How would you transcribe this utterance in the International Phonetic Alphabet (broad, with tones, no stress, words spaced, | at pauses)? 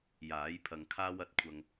jaː˨˥jpʰɐ˨ŋ kʰaː˥wɐ˨˥t̚kʷʰɐ˧ŋ